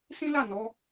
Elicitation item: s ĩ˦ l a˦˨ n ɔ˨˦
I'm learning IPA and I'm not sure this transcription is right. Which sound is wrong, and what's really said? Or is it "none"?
none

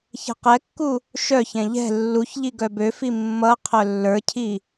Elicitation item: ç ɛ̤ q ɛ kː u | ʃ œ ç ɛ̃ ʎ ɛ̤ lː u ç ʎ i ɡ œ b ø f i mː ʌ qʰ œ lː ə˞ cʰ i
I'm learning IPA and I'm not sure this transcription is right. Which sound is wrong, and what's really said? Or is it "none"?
none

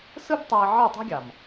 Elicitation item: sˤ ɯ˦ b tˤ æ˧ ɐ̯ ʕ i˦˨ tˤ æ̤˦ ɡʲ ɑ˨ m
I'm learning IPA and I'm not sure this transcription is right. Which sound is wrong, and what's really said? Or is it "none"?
sˤ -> s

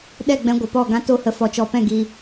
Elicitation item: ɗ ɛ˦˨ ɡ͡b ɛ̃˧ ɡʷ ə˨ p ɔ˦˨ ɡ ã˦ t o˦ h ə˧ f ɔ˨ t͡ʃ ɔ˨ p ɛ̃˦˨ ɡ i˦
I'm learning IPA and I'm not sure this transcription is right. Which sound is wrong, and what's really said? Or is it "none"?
none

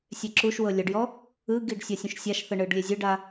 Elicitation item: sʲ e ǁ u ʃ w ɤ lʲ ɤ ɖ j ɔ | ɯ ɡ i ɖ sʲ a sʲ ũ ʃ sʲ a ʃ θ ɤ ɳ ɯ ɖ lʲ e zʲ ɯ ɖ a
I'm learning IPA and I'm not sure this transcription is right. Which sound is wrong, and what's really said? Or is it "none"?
none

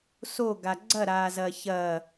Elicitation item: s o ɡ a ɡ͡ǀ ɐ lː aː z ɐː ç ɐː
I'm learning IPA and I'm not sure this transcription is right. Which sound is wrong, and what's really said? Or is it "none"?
lː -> ɾ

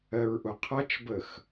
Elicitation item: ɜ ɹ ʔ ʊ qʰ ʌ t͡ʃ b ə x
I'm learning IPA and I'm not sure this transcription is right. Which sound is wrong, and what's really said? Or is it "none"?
none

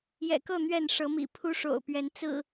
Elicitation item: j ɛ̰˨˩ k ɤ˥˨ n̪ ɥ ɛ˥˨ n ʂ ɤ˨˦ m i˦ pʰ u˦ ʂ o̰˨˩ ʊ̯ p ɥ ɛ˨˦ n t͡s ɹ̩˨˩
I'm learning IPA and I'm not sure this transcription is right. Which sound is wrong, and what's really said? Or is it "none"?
i˦ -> ḭ˨˩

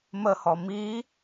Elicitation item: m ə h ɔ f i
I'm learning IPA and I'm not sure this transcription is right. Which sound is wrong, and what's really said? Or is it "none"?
f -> m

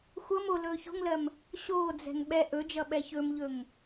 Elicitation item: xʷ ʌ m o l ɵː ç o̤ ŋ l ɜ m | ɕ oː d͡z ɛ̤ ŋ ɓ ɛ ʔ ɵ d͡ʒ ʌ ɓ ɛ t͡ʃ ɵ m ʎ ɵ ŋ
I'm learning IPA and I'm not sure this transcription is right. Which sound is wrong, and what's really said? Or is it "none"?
t͡ʃ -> ç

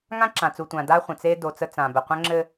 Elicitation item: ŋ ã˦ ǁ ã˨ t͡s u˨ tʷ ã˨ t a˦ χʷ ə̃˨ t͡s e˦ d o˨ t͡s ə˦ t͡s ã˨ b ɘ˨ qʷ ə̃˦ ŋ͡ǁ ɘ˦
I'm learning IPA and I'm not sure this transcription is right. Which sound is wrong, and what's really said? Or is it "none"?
t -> d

